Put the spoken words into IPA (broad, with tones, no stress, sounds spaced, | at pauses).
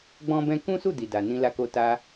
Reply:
ɡ͡b ɔ̃˦ b ɛ̃˦ k ũ˦ s u˦˨ d i˨ d a˨ n ĩ˧ l a˧ k o˧ t a˧